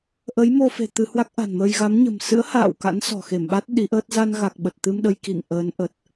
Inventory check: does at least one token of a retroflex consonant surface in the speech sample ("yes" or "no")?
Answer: no